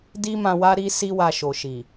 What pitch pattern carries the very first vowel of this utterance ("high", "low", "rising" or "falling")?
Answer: high